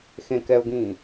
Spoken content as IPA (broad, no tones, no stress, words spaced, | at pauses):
xẽ kɛʊ̯ɡĩː